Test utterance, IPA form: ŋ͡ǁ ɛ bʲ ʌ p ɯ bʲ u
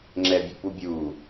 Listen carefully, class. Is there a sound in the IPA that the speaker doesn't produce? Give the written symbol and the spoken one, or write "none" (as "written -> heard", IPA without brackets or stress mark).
ɯ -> u